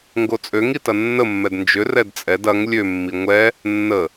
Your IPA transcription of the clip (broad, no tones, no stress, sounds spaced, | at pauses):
ŋ ɡ o t͡sʼ ø ŋ i t ɐ nː ə mː ɛ d n d͡ʒ ʏ r ɛ d t͡sʼ ɛ d ɐ ŋ lʲ ø mː i ŋʷ ɛ | nː ə